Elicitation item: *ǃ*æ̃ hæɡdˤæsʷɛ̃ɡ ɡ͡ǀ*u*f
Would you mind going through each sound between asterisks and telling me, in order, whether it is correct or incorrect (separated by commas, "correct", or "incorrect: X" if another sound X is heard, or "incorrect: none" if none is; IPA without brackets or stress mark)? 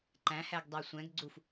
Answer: correct, correct